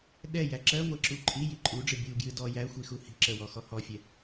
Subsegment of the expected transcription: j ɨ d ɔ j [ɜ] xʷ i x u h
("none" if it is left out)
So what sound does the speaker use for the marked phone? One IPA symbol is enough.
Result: æ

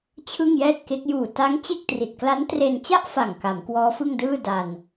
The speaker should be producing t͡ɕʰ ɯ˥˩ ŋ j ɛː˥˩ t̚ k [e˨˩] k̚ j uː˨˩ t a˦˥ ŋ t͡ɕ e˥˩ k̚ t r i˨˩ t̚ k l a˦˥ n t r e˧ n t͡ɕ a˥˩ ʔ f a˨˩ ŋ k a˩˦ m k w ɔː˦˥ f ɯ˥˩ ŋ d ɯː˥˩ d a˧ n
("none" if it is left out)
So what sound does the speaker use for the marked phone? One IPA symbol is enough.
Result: e˦˥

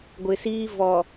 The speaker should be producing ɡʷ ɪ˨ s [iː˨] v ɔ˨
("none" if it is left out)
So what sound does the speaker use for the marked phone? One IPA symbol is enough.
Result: iː˦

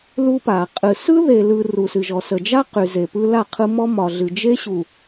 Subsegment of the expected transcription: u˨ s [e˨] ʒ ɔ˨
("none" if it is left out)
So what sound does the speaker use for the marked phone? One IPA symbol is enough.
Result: ɨ˨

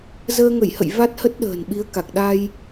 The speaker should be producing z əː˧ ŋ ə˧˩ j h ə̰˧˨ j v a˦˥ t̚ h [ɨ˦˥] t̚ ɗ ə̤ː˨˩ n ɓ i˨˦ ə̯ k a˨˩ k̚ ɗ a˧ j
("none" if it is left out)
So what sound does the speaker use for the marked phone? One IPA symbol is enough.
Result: ə˦˥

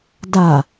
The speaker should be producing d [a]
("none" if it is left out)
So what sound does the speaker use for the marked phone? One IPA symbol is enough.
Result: a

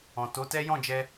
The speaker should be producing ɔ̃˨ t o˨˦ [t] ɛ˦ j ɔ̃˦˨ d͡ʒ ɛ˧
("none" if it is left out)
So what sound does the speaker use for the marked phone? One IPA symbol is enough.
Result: t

